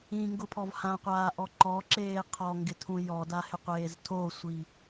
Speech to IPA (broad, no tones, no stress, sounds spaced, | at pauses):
ĩ ŋ ɡ ʊ pʰ ɔ v h ã qʷ aː ʔ ɔ ǃ ɔ ǁ eː qʰ ɔ ŋ ɡ ɪ tʰ ũ j ɔ d a h ɪ qʷ eː z tʰ o sʷ i